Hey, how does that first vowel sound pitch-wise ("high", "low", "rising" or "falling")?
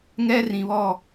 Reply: high